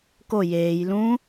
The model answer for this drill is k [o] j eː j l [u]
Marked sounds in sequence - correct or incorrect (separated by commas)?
correct, incorrect